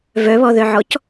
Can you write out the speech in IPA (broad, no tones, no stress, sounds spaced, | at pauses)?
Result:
v œ β ɔ ð œ ʕ ɔ c